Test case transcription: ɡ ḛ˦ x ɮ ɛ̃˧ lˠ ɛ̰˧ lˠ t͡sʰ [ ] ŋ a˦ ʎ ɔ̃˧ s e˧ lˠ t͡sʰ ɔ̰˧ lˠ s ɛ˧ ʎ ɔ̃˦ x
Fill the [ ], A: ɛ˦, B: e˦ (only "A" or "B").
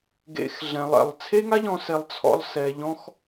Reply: B